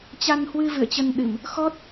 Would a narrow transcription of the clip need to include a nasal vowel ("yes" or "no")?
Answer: no